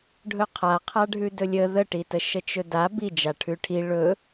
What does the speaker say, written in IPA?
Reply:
ɖʱ ɵ qʰ a qʰ a ɖʱ ʉ d ɵ lʲ ə ð ə ʈ i t ə ʃ ə t͡ʃ ɵ d a b i d͡ʒ a ʈʰ ʉ ʈʰ i ɭ ɵ

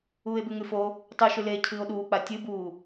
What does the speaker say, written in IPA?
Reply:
uː e̯ b ʉ ŋ ʉ f o | tˤ ʉ ʃ ʉ l eː cʰ ɨː o̯ ɗ uː k͡p a tʲ ɨ b uː

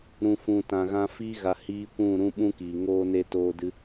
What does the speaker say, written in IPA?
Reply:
ɾ ũ˨ f ũ˨ t ã˨ ɣ ã˧ f iː˧ ɣ a˨ h iː˧ kʷ ũ˦˨ ɾ ũ˦ ɓ ũ˦ k iː˨ ŋ oː˦ n e˦ t oː˦ d ɨ˦

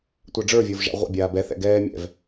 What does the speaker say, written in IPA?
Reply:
tʷ a ɖ͡ʐ ə˞ vʲ ə˞ v ʒ a̰ ʁʷ ɛ̰ bʲ aː b ɛ θ ɛ̰ ɡ ɛː mʲ ɛ̰ v

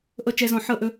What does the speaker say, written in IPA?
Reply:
ʔ ɤ˦˨ t͡ʃ ɛ˦ z ɔ̃˦˨ ħ ɤ˦ ʔ ɵ˧

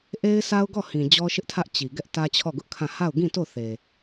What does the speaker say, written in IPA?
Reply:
ʔ e˦ ɪ̯ sʰ a˦ ʊ̯ ɡ ɔ˦˨ h ĩ˨ d͡ʑ ɔ˦ ʃ ɪ˦ ʔ tʰ ä˦ ʔ t͡ɕ i˨ ɡ ɛ˦ ʔ t ä˦ t͡ɕʰ ɔ˦˨ ɡ ʊ˦ ʔ kʰ ã˦˨ h a˦˨ ʊ̯ ɡ ĩ˦˨ t o˦˨ θ e˨

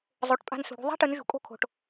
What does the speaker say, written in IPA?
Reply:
zˤ o˩˧ ʈ pʼ a̤˧ n s ṳ˩ ɽ ṳ˧ ðˤ a̤˥ ʈ ɯ˩˧ n ʒ ṳ˩˧ kʼ o̤˧ kʰ o̤˩ ʈ

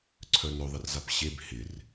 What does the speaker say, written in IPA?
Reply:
ǀʰ œ n œ ðˤ ɪ r z a p ɕ e b h ɪ r

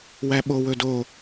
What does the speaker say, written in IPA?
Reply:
w æ ɓ o w ɵ d o

